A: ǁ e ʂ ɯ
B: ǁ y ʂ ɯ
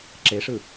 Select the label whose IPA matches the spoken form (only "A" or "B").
A